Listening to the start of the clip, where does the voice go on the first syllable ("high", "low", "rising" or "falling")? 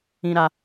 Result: high